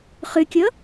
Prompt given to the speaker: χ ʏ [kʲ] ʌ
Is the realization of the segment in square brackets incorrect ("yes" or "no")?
no